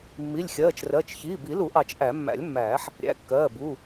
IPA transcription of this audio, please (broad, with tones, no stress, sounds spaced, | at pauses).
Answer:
mː i˩˧˩ lʲ xʲ ɜː˩˧˩ t͡ʃ r ɜ˩˧˩ t͡ʃ ç iː˩˧˩ b i˨˩˦ l u˨˩˦ ʔ ɑ˨˩˦ t͡ʃ ʔ æ˨˩˦ mː æ̰˨˩˦ lʲ mː æː˨˩˦ ħ | ɾʲ æ̰˩˧˩ kː ɜː˩˧˩ b u˩˧˩